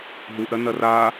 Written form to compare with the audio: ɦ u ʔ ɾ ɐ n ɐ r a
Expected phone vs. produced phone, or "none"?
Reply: none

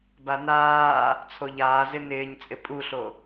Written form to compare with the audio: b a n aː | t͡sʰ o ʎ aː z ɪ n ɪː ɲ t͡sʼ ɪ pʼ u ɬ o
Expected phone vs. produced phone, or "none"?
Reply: none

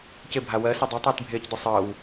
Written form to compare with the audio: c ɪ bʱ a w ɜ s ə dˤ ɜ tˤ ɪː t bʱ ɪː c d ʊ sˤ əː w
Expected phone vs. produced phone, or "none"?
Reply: none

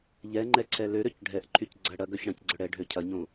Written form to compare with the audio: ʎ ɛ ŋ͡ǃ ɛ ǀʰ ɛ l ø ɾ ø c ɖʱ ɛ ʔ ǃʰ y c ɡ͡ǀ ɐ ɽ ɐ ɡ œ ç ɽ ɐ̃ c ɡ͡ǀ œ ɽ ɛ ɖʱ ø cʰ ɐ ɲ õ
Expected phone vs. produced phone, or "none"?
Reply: none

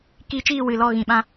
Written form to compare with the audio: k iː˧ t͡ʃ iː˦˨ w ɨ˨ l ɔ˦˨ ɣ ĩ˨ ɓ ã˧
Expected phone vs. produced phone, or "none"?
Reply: none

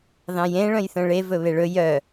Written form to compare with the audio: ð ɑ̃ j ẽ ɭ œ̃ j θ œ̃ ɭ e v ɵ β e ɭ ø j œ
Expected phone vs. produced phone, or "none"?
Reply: ø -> ɵ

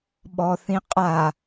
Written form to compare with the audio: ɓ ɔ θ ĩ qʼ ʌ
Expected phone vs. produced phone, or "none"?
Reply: ʌ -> a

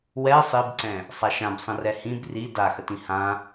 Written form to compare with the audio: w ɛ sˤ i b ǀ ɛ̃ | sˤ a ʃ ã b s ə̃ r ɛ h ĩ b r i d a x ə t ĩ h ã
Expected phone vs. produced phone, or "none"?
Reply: s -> sˤ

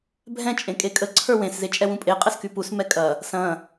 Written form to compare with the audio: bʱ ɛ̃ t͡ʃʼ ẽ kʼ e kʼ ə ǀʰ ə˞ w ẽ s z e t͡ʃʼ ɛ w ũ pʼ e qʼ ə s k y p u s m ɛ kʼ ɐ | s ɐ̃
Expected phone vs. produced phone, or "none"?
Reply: none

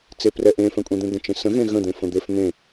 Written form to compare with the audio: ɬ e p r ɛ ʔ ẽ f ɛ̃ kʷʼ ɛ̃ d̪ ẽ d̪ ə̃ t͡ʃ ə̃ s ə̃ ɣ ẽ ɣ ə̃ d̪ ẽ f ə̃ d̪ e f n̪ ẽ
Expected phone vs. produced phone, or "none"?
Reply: ɬ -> t͡s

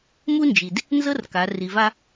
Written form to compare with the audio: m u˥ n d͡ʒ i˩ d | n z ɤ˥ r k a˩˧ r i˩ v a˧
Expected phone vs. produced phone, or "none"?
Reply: none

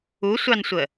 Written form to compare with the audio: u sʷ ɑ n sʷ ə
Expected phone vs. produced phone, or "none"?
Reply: none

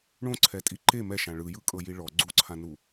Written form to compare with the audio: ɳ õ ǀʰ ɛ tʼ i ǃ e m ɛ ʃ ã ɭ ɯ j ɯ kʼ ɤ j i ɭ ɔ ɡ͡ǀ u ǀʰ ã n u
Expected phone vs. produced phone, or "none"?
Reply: none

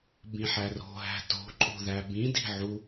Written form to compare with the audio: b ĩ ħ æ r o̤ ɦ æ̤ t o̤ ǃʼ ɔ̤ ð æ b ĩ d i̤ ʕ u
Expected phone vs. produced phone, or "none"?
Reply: ɔ̤ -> o̤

